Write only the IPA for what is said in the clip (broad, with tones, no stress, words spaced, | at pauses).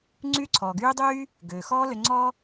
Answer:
ŋ͡ǀyː˦ǀʰɔː˩ ɡyː˦dˤyː˥ | ɡøː˩xɔː˦ lø˨ ŋ͡ǀɔː˥